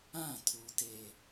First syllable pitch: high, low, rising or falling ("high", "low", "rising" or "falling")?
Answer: falling